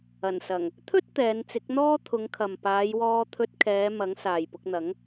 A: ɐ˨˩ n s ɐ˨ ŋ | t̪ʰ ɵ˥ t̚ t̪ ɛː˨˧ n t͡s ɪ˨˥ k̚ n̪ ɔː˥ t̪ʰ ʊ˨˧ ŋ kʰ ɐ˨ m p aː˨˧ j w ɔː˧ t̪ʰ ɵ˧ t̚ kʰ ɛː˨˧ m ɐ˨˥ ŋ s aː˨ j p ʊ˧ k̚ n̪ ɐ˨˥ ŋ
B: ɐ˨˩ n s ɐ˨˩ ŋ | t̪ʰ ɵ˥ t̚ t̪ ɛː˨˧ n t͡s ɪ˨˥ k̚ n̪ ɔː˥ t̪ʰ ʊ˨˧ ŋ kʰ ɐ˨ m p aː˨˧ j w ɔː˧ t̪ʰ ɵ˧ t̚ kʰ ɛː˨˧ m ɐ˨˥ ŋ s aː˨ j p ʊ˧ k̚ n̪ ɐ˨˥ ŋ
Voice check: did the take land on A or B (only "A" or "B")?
B